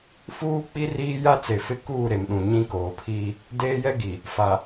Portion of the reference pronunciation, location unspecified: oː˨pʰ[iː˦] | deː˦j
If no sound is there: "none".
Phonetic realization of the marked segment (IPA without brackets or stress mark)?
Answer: iː˦